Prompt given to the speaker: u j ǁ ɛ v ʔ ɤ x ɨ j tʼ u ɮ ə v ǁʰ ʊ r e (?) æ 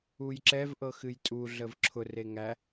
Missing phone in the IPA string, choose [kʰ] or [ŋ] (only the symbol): ŋ